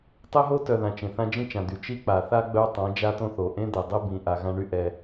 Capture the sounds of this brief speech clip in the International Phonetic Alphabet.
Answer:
tˤ e˦ ɦ o˦ t œ˨ ð ã˨ t͡ʃ ẽ˨ θ ã˦ d͡ʒ ĩ˦ t͡ʃ ã˨ d̪ y˨ t͡ʃ i˦ k͡p a˨ θ a˦ ɡ͡b œ˦ tˤ ã˨˦ d͡ʒ a˦ t õ˦ θ o˨ ʔ ẽ˦ d̪ e˨ dˤ e˦ b ĩ˨ ʔ a˨ ɣ ã˦ ɳ y˦ ʔ ɛ˦

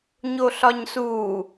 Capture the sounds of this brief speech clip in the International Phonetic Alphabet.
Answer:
ɲ o ɬ ɒ ɲ s uː

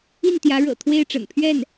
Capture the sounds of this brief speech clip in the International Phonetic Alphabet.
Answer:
i˥˩ n t̪ j ä˧˥ ɻ ɤ̰˨˩ t̪ʰ w e˥˩ ɪ̯ ʈ͡ʂ ə̰˨˩ n pʰ ɥ ɛ˥˩ n

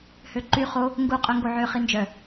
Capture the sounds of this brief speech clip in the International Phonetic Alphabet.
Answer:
h ø ǃ y χ o | ŋ ɡ u qʼ œ ŋ ɡ o ʕ ø χ i n d͡ʒ œ

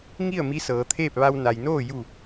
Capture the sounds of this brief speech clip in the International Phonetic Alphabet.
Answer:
ŋ i˥˨ ə̯ m i˧˥ s ɤː˩˧ t̪ʰ eː˥˨ p̚ ʋ a˧ w n a˩ j n oː˥˨ j u˧˩

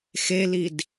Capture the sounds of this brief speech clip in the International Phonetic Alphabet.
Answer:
x e l i d

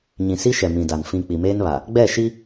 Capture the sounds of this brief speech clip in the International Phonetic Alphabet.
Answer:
ɲ ĩ˨ s i˦ ʃ ɛ˨ m ĩ˨ d a˨ n f ĩ˨ k͡p i˨ m eː˦ n β a˨ | ɡ͡b ɛ˦˨ ʃ i˦

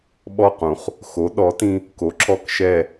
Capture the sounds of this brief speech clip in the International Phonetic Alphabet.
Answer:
ɓ ɔ˦˨ q ũ˩ χ | x o˨˥ ɗ ɔ˨˥ t ĩ˦ | k o˨˥ ǁ ɔ˦ k ʃ ɛ˦˨

